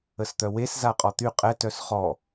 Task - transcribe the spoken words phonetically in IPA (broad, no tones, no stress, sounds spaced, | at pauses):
ə s t̪ œ w e s z a qʼ ɔ t̪ y qʼ ɛ t œ s χ ɔ